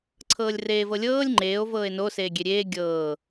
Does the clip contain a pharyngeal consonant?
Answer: no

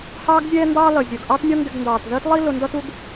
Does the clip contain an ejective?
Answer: no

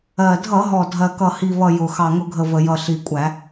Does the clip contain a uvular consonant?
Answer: no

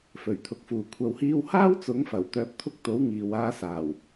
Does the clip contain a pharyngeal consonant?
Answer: no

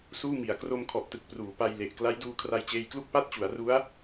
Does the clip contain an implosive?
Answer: no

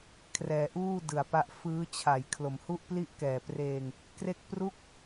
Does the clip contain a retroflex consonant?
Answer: no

